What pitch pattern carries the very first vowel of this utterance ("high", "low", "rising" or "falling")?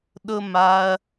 falling